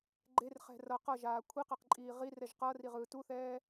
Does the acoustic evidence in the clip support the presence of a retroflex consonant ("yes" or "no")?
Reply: no